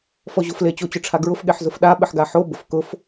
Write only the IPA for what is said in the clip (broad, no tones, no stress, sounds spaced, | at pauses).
f ɔ ʑ o f l e t͡ɕ o t͡ɕ ʊ ʈ͡ʂʰ a ɡ ɹ ʊ f ɠ e ħ z ʊ f ɗ a ɓ ɪ ħ ɡ a ħ o b ʊ f k ʊ f